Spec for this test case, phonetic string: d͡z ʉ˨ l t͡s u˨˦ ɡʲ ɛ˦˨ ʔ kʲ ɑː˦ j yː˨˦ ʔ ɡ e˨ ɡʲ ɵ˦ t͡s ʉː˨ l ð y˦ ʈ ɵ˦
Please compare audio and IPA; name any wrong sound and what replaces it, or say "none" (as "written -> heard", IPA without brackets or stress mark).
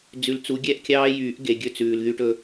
none